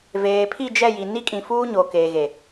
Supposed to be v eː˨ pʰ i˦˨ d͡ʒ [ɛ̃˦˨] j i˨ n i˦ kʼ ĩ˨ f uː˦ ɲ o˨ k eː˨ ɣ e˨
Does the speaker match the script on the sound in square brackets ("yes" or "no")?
no